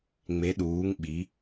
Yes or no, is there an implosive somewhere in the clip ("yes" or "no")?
yes